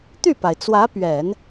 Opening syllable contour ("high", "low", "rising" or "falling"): falling